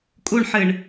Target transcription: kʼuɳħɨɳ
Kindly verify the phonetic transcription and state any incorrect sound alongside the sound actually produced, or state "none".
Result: none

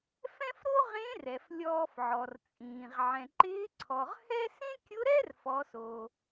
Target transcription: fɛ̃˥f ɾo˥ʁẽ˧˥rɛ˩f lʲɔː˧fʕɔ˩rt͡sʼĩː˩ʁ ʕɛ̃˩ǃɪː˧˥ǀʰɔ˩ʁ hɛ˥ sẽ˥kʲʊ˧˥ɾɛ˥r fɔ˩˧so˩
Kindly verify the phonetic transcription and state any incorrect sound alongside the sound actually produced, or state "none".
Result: none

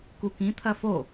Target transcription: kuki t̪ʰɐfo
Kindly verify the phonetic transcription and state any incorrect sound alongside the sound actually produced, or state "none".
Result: i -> ĩ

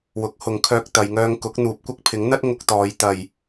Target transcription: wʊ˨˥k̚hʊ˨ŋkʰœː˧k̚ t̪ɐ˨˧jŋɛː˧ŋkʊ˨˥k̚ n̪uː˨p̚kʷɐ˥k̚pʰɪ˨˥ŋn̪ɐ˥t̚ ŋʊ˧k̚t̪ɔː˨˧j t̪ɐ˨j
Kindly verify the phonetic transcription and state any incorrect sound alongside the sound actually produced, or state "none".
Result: ɛː˧ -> œː˧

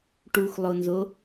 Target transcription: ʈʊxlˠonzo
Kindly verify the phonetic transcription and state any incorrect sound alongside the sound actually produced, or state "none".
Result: ʊ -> u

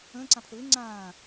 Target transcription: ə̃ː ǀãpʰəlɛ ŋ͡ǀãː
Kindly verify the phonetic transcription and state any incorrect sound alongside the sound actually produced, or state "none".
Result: ɛ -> ɪ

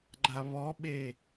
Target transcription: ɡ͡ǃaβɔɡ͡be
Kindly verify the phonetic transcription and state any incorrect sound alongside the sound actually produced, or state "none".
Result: ɡ͡b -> ɓ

